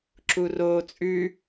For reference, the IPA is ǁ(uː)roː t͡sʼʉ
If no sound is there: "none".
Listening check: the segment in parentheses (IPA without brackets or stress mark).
u